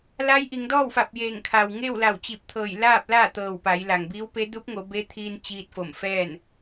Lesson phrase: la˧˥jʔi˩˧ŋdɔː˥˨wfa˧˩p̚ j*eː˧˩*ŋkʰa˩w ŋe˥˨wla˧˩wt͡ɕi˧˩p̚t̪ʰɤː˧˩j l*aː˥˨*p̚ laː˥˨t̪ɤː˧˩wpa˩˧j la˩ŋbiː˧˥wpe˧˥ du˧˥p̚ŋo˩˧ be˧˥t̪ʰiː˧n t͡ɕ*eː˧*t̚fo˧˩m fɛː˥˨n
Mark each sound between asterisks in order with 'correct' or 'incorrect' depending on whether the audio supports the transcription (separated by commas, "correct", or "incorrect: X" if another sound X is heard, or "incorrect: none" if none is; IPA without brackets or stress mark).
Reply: correct, correct, incorrect: iː˧